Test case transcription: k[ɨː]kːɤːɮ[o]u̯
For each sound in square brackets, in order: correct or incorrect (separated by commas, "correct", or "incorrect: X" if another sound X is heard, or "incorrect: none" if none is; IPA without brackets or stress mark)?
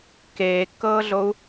incorrect: eː, correct